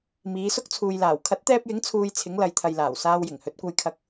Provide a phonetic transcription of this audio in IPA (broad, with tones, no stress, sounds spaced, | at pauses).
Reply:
m iː˨˧ s ʊ˥ k̚ t͡sʰ uː˨ j l aː˨˩ w kʰ ɐ˨˥ t̚ t̪ ɛː˧ p̚ j ɪ˨˥ ŋ t͡sʰ uː˧ j t͡sʰ ɪ˨˥ ŋ l ɐ˨˧ j t̪ʰ ɐ˨ j l aː˨˩ w s aː˧ w j ɪ˨˩ ŋ h ɵ˨˥ t̚ kʷ ɐ˧ j kʰ ɐ˧ k̚